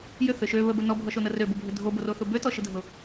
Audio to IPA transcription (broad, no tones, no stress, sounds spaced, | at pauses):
j ʏ θ ʏ ʃ ø β ə b ə n ɔ bʱ ɔ ʃ o n ə r ø b ʊ bʱ ʏ dʱ o b o r o θ ʊ b ø t ɔ ʃ ə dʱ ʊ